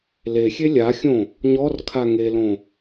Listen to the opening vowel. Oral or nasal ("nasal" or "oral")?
oral